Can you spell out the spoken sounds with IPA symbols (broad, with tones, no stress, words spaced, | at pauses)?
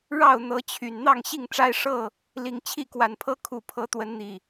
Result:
ɻɑ˥˨ʊ̯n̪ɤ˨˦t͡ɕʰy˨˩n n̪ɑ˥˨ŋɕi˥˨ŋʈ͡ʂa˦ɪ̯ ʂɤ˥˨ | li˨˩ŋ t͡ɕʰi˥˨kwa˨˩npʰɤ˦ kʰu˨˩pʰɤ˨˦t̪wə˨˦nn̪i˨˩